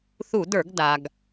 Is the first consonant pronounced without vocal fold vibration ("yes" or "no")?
yes